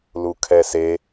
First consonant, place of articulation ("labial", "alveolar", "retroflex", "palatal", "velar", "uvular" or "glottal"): alveolar